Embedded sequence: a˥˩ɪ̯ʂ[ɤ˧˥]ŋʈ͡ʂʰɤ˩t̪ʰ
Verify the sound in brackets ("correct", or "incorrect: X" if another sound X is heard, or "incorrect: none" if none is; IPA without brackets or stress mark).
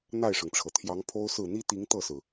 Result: incorrect: ɤ˩